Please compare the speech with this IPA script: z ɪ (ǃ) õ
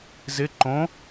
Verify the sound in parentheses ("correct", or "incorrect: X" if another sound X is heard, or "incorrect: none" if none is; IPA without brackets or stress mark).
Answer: correct